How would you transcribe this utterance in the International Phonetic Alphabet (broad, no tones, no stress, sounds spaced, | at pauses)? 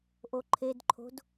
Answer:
ʔ o ǃʰ e d ǃʰ o̤ d